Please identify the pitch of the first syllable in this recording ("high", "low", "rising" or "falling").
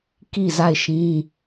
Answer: falling